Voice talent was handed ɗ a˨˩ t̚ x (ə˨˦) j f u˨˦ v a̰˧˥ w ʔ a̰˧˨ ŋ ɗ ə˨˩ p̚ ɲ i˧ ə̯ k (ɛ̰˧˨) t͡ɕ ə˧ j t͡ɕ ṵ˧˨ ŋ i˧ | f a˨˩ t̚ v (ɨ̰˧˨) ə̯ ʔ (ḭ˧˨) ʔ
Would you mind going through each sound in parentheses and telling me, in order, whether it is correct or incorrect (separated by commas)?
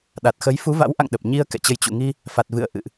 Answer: correct, correct, correct, incorrect